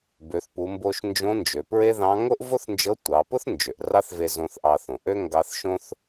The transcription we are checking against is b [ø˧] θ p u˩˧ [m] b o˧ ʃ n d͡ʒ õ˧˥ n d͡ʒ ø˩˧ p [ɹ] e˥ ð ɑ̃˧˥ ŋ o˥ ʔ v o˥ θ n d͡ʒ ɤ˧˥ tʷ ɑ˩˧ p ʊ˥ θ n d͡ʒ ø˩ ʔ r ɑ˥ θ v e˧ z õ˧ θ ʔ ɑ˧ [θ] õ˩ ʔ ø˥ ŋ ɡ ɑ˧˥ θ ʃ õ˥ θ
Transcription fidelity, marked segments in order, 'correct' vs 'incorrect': incorrect: ø˩˧, correct, correct, correct

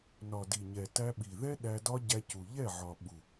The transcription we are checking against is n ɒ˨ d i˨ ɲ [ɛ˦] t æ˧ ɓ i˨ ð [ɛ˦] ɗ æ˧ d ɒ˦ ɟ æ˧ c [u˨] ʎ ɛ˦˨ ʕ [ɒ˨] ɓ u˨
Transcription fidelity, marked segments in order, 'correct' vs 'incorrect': incorrect: ɛ˨, correct, correct, correct

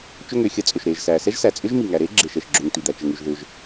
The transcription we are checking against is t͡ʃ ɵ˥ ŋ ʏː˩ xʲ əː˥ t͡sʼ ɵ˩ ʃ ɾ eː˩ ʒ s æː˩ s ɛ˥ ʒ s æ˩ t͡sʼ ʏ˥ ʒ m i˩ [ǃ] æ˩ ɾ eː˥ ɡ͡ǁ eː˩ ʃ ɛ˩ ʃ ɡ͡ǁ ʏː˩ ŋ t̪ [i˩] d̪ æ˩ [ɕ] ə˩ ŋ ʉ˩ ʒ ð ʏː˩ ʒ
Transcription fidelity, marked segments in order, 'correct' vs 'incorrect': incorrect: ŋ, correct, incorrect: t͡ʃ

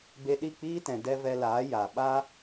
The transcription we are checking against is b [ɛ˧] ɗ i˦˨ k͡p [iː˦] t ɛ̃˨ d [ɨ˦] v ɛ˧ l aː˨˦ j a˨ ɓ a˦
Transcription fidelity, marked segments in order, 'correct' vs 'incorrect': incorrect: e˧, correct, incorrect: ɛ˦

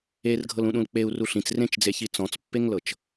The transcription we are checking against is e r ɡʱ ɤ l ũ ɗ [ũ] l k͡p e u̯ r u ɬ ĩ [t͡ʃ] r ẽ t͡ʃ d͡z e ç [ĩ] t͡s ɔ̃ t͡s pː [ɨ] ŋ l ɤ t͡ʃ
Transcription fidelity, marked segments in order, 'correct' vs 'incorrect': correct, incorrect: t͡s, incorrect: i, incorrect: e

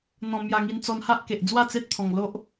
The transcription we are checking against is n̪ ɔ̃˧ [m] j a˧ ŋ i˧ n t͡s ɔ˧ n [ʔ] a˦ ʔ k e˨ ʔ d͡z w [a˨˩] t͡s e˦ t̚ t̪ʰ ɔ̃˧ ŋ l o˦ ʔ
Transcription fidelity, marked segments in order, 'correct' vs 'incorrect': correct, incorrect: h, incorrect: a˥˧

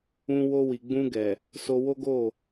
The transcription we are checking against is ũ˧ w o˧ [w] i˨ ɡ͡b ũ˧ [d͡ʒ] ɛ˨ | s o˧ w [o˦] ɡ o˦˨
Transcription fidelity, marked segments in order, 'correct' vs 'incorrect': correct, incorrect: ɡ, correct

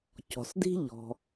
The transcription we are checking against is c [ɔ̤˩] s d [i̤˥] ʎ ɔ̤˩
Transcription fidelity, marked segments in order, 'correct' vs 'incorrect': correct, correct

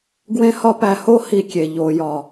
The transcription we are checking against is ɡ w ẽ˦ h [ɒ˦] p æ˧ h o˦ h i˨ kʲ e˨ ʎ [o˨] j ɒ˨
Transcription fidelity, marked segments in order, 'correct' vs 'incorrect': correct, correct

